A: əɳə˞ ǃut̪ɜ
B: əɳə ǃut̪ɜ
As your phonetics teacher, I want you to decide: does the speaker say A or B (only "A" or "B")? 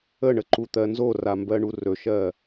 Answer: B